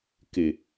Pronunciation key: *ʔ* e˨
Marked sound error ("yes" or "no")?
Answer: yes